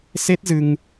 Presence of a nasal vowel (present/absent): absent